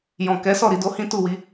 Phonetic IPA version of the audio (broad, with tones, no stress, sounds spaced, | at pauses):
j ɔ̃˨ k ɛ˨˦ s ɔ˦˨ ɾ i˧ d o˧ h ĩ˦ t u˦˨ w i˧